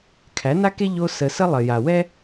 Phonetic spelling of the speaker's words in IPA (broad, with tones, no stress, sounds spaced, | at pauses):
kʰ æ˨˦ n a˦ k e˦ ʎ o˧ s ə˧ s ə˦ lˠ ə˨ j a˨ w ɛ˦